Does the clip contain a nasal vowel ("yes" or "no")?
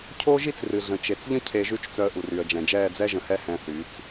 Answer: yes